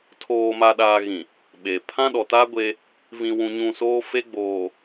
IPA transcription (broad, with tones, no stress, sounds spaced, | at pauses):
tʰ oː˨ m a˨ ɗ aː˨ ɣ ĩ˨ | ɓ e˨ pʰ ã˦ ɗ ɔ˨ t aː˦ ɡʷ e˦ | v ĩ˨ w ũ˨ ɲ ũ˨ s oː˦ f e˦ ɡ͡b oː˨